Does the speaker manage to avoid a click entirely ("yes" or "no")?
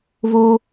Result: yes